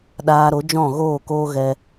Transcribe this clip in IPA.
ɗ aː˧ ɾ o˨˦ d͡ʒ ɔ̃˦˨ ɣ oː˦˨ k oː˦ ɣ ɛ˧

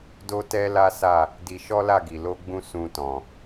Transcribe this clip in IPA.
d o˦ t ɛ˦ l a˦ s a˦˨ | d i˧ ʃ ɔ˦ l a˦˨ ɡ i˨ l o˧ ɡ͡b ũ˧ s ũ˧ t ɔ̃˨

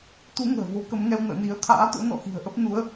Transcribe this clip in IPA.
t̪ u˨˦ ŋ ə̤ː˨˩ v o˨˦ k ə˨˦ m ŋ ɛ˧ w n ə̰ː˧˨ n i˨˦ ə̯ t̪ʰ a̰ː˧˥ t̪ o̰˧˥ n ɔ̰˧˨ x i̤˨˩ ə̯ ʔ ə˦˥ p̚ n u˨˦ ə̯

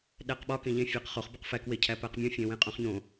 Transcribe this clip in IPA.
ɗ æ q ɓ ɒ k ẽ ʎ ẽ fʲ æ q χ o χ b i q f æ k w e cʰ æ p æ q mʲ ũ fʲ ẽ w ẽ qʼ õ χ ɲ õ

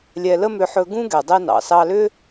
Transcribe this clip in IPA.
lʲ ɛ˧ l ə˥ m ʏ˧ ħ ɵ˧ ɡ ũ˥ ɡ ɛ˩ dˤ ɛ˧ n ɑ̰˩ s ɑ˧ l ʏ˥

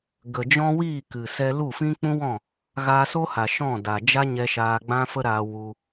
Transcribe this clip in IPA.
ɡ ə˨ d͡ʒ ɔ̃˦ w iː˦˨ k ɨ˨ s ɛ˧ l u˦˨ f ĩ˦ k͡p ũ˦ w ɔ̃˦˨ | ɣ aː˧ s o˦ h a˨ ʃ ɔ̃˦˨ d a˨ d͡ʒ a˦ ɲ ɛ˧ ʃ aː˧ ɡ͡b ã˦ f ə˦ ɾ aː˧ w u˧

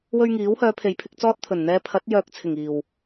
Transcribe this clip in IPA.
w ɵ˥ ɥ ŋ iː˨˥ w h œː˨˧ pʰ e˨ j pʰ ɪ˧ k̚ t͡s ɔː˥ t̚ t̪ʰ ɵ˨˩ n n̪ ɛː˧ pʰ ɐ˨˥ t̚ j œː˧ k̚ t͡sʰ ɪ˨˩ ŋ iː˨˩ w

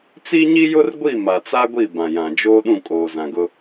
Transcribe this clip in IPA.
t͡s i˦ ɲ i˦ j ʊ˦ r ɡʷ i˦˨ m a˨ t͡s a˦ ɡʷ i˦˨ b ã˨ j ã˨ d͡ʒ oː˦ ɗ ũ˦˨ kʼ oː˨ z ã˨ ɡ ʊ˦

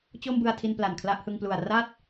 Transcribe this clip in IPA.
t͡ɕ o˥˩ m b ɯ˧ a̯ tʰ i˧ n p l a˨˩ n kʰ l a˥˩ ʔ h ɯ˧ ŋ p l u˨˩ a̯ r a˥˩ t̚

